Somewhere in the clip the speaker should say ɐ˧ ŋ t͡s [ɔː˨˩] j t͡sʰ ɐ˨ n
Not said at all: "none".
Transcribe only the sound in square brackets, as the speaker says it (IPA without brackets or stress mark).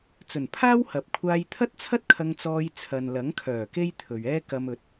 ɔː˧